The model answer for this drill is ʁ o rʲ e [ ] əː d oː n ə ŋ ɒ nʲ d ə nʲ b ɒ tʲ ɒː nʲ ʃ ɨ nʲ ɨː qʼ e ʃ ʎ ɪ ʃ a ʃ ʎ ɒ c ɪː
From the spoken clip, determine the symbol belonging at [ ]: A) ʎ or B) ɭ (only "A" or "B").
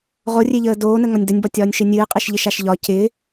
A